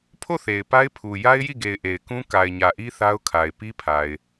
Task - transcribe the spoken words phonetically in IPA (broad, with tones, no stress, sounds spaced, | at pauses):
pʰ o˦˨ θ e˨ ɪ̯ p a˦ ɪ̯ pʰ u˨ j a˦ ɪ̯ j i˦˨ ɡ e˨ ɪ̯ ʔ e˨ ɪ̯ k ũ˦ k a˨ ɪ̯ ɲ ä˨ ʔ i˦ θ a˦ ʊ̯ kʰ a˨ ɪ̯ p i˦ pʰ a˨ ɪ̯